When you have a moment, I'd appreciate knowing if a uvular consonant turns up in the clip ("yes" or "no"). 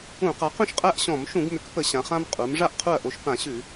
yes